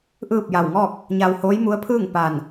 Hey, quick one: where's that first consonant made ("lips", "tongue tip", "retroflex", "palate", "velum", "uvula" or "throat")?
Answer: throat